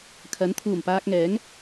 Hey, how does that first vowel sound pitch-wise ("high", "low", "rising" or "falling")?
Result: rising